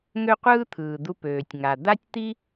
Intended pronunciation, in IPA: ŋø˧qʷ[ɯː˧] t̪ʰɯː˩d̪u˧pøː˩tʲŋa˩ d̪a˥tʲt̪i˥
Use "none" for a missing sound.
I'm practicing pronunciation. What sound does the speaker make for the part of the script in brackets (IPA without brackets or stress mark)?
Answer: ɯː˧